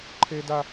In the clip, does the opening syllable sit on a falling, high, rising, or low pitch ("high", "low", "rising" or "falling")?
high